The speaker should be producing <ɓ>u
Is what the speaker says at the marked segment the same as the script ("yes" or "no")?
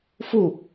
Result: no